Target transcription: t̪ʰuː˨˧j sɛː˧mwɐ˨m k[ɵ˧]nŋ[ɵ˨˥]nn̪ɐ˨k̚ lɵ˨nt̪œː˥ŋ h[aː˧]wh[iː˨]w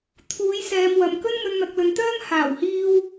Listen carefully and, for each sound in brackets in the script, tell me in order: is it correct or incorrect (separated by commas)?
incorrect, incorrect, incorrect, incorrect